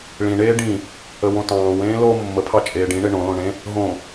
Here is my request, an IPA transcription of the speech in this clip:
ɭ ĩ ɳ eː ɖ ĩ | ə w õ t ɑ̃ː w ẽː l o mː ə pʰ ɑ t͡ʃʼ eː ɖ ĩ ɳ e ɳ õ l õ ɳ ẽ | ɦ õ

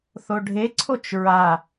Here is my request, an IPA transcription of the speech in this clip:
θ o ɖʱ e ǀʰ o t͡ʃ ɹ a

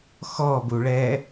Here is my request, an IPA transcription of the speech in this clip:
x ɔ b u ɭ ɛ

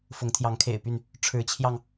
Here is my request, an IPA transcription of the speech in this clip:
f ʊ˨˦ ŋ t̪ʰ j ɑ˨˦ ŋ kʰ ḛ˨˩ ɪ̯ p y˥˨ n | ʈ͡ʂʰ ɻ̩˨˦ t͡ɕʰ j ɑ˧ ŋ

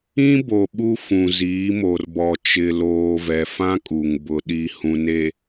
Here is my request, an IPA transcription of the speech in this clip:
ĩ˦ b o˨ ɓ u˦ f ũ˨ z iː˨˦ m o˨ r b ɔ˨ t͡ʃ ɪ˨ l oː˨ v ɛ˨ f ã˦ kʼ u˨ ŋ b ʊ˨ ɗ i˨ h ũ˨ n e˨

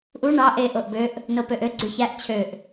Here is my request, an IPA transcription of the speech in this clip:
ʔ u ɳ ɑ ʔ e ʔ o ʔ b ø ʔ | n o p ø ʔ ø ɡ͡ǀ y ç æ ʔ t͡ɕʰ ø ʔ

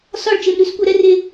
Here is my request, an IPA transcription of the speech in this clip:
s ɒ˦˨ ɭ t͡ʃ e˨ m ɾ ʉ˦ s kʷ œ˨ ɾ ɛ˦ r e˦

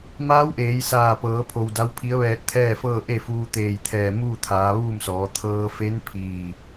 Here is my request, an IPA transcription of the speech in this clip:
m aː˧˥ w ʔ eː˩˧ j s aː˧˩ p ɤː˩˧ pʰ o˩ w d a˧˥ w pʰ i˧˥ ə̯ ʋ ɛː˧ t̚ t̪ʰ ɛː˥˨ f ɤː˥˨ ʔ e˥˨ f uː˧ t̪ eː˧˩ j t̪ʰ ɛː˧˩ m uː˥˨ t̪ʰ aː˩˧ ʋ uː˥˨ m s ɔː˩˧ t̪ʰ ɤː˧ f e˧˥ n pʰ iː˧˩

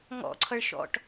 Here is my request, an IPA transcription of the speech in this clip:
ŋ ɔ̰ ǀʰ ʌ ɭ ʃ ɔ̰ ʈ

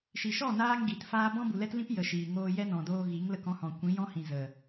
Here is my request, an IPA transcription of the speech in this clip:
ʃ i˨ ʃ ɔ˦˨ n aː˦ ŋ ɡ i˨ t f aː˦ b ɔ̃˦ b u˨ l ɛ˦ t l ĩ˦ p j ə˨ ʃ iː˨ ŋ oː˧ j ɛ˦ n ɔ̃˨ d oː˧ ɣ i˨˦ ŋ l ə˧ k ɔ̃˧ h ɔ̃˨ kʷ ĩ˨˦ j ɔ̃˦ h ĩ˨ z ə˨

